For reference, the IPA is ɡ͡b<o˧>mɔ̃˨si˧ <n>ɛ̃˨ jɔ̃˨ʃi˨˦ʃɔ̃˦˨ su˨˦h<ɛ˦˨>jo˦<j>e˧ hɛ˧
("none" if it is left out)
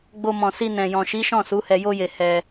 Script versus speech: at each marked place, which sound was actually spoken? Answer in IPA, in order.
o˧, n, ɛ˧, j

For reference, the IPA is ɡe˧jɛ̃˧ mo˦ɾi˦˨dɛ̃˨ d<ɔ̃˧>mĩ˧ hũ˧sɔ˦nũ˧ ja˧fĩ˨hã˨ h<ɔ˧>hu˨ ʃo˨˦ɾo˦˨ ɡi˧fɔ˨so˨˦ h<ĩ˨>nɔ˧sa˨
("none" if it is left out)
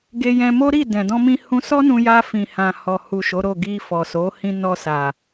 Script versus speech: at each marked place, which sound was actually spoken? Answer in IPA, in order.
ɔ̃˧, ɔ˨, ĩ˧

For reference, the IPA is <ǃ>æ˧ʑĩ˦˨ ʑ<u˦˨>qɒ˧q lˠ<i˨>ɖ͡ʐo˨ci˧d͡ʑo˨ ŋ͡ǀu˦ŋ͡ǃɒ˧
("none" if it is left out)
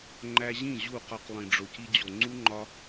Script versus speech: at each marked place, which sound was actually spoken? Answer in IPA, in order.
ŋ͡ǃ, u˦˨, ĩ˨

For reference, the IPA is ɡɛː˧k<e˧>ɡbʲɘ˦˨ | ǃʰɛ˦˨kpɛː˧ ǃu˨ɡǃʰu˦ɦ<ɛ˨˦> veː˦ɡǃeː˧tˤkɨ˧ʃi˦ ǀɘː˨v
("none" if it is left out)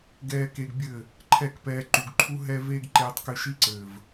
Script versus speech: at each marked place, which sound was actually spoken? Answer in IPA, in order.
e˧, ɛ˦

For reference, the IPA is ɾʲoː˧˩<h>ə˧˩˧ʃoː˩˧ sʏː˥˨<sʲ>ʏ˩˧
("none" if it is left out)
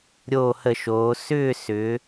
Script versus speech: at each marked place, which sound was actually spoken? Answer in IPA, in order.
h, s

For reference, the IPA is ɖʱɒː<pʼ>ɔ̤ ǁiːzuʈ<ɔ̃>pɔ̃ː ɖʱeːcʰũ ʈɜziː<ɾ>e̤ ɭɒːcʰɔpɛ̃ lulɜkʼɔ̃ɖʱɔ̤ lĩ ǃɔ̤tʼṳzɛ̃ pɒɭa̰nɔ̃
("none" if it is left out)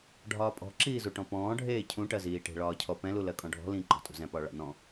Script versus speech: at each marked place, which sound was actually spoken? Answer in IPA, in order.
pʼ, ɔ̃, ʈ

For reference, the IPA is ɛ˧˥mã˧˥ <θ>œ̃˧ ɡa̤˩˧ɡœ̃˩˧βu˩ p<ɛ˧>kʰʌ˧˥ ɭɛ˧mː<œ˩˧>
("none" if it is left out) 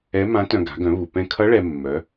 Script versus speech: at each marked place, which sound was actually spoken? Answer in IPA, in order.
t, ɛ̃˧, œ˩˧

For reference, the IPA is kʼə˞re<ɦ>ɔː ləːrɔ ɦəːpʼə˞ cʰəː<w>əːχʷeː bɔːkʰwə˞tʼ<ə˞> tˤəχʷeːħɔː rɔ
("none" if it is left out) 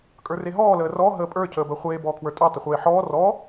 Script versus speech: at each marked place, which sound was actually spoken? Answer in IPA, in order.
ɦ, b, ə˞

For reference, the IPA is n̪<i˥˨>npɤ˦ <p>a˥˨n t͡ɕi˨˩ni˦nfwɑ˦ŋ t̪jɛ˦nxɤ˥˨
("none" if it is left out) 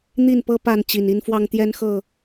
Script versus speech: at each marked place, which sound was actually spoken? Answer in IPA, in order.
i˥˨, p

